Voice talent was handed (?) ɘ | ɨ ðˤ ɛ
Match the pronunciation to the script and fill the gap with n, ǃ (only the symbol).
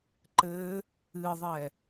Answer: ǃ